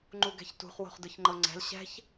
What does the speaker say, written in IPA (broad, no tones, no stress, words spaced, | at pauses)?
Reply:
ŋ͡ǃuɡɛ̤çtṳχ wo̤χdɯçŋ͡ǃɤŋ͡ǀɛ̤l ɕɛ̤ç